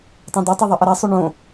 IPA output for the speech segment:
tˤõdotˤe ðˤɛʔʌɾɛsˤo ɳõ

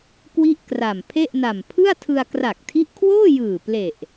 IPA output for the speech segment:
kwi˥˩ʔkra˨˩m pʰe˥˩ʔna˨˩m pʰɯ˥˩a̯tʰɯ˧a̯ kra˨˩k̚tʰi˦˥ʔkʰwoː˥˩jɯː˨˩ ple˨˩ʔ

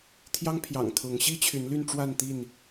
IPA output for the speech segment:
t̪ʰjɑ˦ŋpʰjɑ̰˨˩ŋ t̪ʰʊ˨˦ŋ ɕi˦t͡ɕʰy˨˦nly˥˨nʈ͡ʂwa˥˨n t̪i˥˨n

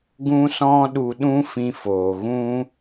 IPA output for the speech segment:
ɡũ˧sɔ̃˧ ɗu˧ɗũ˦fĩ˧ foː˨ ɣũ˦

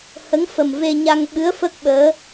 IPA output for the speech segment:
hə˧˥ŋfə˨˩mve˧ ɲa˧ŋɓɨ˧˥ə̯fə˦˥k̚ ɓəː˧˥

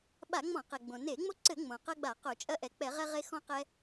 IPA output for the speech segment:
ɓa˧˩˧ŋ͡mɔ̃˧˩˧qɛ˩ɡ͡bõ˩ ne˧˩˧ŋ͡mo˦ ǀɘ˧˩˧ŋ͡mõ˩ qɐ˦ɡ͡ba˧˩˧ qo˧˩˧t͡ʃʼɐ˦ ʔɛ˩k͡pɛ˧˩˧ʁɛ˦ ʁe˦xɔ̃˦qɛ˦

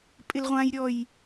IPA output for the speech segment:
pʼɪlʁʷãjɾʲɔj

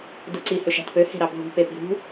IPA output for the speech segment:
duǀi høʃæ̤tpø he̤ɾɑbʱṳ pepi̤ɾṳ

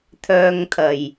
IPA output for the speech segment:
t̪ʰœː˧ŋt̪ʰɐ˨˩j

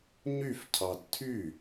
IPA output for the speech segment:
ɲyfcʰɑd tʰy

